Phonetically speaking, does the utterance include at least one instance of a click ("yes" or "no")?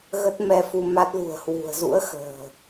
no